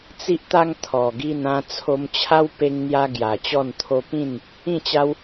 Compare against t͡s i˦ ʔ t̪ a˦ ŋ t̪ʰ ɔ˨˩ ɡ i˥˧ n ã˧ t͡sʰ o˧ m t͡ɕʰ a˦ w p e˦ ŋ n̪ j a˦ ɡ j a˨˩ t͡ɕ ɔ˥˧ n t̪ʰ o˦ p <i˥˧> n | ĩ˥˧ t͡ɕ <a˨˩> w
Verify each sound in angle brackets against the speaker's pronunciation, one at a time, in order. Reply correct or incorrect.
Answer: incorrect, incorrect

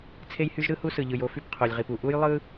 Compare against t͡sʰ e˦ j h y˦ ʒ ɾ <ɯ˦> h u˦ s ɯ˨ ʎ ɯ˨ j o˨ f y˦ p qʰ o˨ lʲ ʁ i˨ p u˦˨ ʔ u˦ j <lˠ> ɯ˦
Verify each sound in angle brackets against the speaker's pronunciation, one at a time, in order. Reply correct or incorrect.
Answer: correct, correct

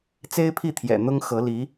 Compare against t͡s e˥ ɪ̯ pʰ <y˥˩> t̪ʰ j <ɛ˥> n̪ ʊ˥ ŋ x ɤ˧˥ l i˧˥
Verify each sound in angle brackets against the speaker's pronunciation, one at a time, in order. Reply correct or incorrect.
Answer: incorrect, incorrect

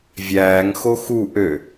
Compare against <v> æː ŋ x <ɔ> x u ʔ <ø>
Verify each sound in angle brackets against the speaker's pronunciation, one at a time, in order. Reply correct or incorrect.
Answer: incorrect, incorrect, correct

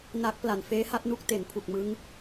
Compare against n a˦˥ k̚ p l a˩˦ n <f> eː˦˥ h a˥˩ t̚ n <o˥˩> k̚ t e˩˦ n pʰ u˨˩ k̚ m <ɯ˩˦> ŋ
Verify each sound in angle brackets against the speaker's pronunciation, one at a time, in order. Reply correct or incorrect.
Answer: correct, incorrect, incorrect

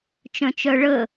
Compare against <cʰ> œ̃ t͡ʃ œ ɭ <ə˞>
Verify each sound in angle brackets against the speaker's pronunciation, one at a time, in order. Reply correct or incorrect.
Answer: incorrect, incorrect

